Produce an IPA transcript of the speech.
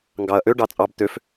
ŋ ɡ ɑ ɐ̯ ʔ ø ɖ ɑ t͡sʼ ɑ b t̪ ø f

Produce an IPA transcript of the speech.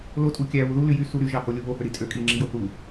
l o tʼ u kʲ æ β u ð u l y j y s u ɾ y ʒ ɑ h o lʲ u β o h ø ɾ i tʼ ø kʼ i ŋ͡ǁ i j o θ u

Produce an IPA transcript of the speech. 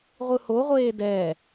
ʁʷ ɯ h o ʁʷ eː d ɛ

